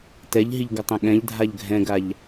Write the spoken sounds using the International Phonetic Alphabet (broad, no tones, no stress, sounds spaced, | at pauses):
t ɛ ʎ ɦ i ʎ ɡ ʌ tˤ ɛ̃ ɠ ɛ̃ ʎ dʱ a ʎ ɡʱ ɛ̃ ɡ a ʎ